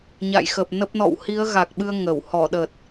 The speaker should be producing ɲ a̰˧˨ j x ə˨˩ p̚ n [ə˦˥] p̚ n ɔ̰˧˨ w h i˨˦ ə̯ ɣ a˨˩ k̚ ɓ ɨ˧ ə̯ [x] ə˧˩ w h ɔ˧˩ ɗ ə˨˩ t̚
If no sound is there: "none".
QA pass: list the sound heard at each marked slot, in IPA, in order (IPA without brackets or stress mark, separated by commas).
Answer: ə˦˥, ŋ